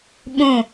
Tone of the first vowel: falling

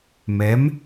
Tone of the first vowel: rising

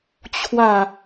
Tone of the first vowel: falling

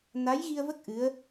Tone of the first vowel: rising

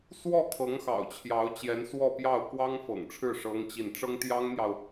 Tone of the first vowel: falling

